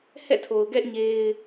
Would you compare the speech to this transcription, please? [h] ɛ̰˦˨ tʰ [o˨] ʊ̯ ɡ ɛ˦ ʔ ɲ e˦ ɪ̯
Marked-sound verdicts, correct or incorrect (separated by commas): correct, correct